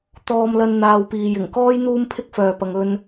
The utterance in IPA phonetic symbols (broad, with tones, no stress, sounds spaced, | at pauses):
t̪ ɔː˧ m l ɐ˧ n n̪ aː˨ w p iː˨ j ɪ˨˩ ŋ k ɔː˥ j n̪ uː˥ m pʰ ɪ˥ k̚ f œː˨ p ɐ˨ ŋ ɵ˧ n